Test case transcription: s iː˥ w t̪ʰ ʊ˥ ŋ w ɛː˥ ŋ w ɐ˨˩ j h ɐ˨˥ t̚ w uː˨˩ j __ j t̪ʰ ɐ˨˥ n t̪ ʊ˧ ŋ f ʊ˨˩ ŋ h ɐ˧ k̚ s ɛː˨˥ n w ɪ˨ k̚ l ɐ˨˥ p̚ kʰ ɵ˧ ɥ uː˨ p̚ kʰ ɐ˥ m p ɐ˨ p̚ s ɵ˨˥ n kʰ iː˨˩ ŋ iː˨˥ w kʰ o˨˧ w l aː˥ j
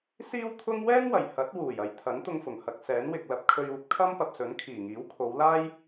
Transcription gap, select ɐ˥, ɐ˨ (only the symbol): ɐ˨